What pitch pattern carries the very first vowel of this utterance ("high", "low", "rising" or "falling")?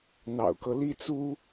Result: low